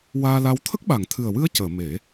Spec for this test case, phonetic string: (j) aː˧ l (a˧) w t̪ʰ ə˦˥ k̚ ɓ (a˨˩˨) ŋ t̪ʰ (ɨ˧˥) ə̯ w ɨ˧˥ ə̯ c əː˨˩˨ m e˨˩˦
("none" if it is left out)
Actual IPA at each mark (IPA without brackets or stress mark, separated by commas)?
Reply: w, a˧, a˨˩˨, ɨ˨˩